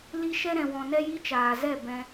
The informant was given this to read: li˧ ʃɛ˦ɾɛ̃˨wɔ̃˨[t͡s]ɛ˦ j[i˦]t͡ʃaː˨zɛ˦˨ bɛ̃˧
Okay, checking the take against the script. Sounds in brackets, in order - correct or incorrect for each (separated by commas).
incorrect, correct